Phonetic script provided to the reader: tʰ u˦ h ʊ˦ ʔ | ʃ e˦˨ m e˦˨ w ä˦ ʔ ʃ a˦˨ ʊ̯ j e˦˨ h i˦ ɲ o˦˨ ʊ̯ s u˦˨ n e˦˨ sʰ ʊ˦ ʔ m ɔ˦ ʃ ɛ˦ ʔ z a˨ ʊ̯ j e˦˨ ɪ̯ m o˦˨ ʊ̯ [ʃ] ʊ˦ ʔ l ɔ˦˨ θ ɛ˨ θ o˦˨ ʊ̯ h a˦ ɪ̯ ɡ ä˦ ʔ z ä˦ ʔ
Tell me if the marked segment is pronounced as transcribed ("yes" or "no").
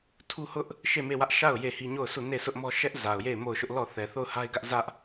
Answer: yes